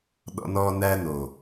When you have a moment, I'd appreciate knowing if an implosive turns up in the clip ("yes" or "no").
yes